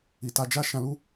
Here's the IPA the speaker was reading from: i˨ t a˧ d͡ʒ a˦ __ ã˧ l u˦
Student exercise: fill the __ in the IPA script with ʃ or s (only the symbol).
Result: ʃ